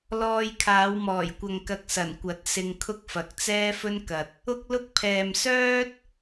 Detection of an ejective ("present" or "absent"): absent